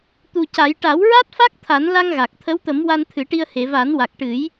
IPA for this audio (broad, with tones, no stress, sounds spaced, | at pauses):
t̪ u˨˩ c a˨˩˦ j ʈ a˨˩˦ w ɹ a˦˥ t̚ f a˦˥ k̚ t̪ʰ a˨˩˦ n l a˧ ŋ ɣ a˨˩ k̚ t̪ʰ ə˧˥ w t̪ ə˨˩˦ m w a˧ n t̪ʰ ɨ˨˩˦ ʈ i˧ ə̯ h e˨˩˨ v a˨˩˦ n w a˨˩ k̚ ʈ ɨ˨˩˦ j